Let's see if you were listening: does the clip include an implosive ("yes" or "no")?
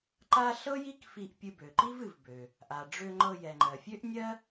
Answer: no